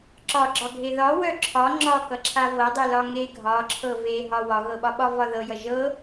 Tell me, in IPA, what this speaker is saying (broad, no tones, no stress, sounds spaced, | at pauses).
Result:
ǁ ɒ ɡ͡ǁ ɒ ɡʱ e ð ɒ w œ ǁʰ ɒ ŋ͡ǁ ɒ k ʌ ǁʰ a v ɤ dˤ e l ɒ ŋ e ɡʱ ɒ ǁʰ ɤ v e ɦ ɒ w ɒ ɣ ɤ ɓ ɒ ɓ ɒ v ɒ ð ɤ j ʌ ʒ ɤ